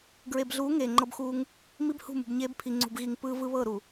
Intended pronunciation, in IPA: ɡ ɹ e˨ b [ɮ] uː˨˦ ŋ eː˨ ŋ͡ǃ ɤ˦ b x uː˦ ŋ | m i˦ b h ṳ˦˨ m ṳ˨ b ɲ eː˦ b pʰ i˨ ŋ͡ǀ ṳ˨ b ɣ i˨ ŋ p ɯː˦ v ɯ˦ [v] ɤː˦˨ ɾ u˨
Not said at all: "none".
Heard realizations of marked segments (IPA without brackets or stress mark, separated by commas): ɮ, β